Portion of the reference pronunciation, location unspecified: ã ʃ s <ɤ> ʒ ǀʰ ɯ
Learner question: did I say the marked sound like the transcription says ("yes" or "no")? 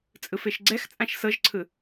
yes